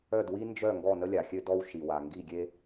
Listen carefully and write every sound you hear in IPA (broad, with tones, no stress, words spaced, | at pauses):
œ˥˩dwi˥ nd͡ʒœ˥˩ ŋɡɔ˥˩ nə˥lʲa˩xʲø˥ dɔ˥w ʃi˩wa˩ ŋɡi˥˩ɡʲe˥